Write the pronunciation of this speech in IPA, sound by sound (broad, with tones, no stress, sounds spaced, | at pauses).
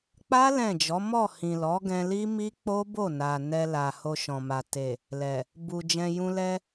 k͡p a˦ l ɛ̃˦˨ d͡ʒ ɔ˨˦ m ɔ˦˨ h ĩ˨ l ɔ˨˦ ɡ ɛ̃˧ l i˦ m i˦ k͡p o˦ b o˦˨ n a˨ n ɛ˧ l a˨ h o˧ ʃ ɔ̃˨ m a˨ t e˨ | l ɛ˨ | b u˨ d͡ʒ ɛ̃˧ j ũ˧ l ɛ˧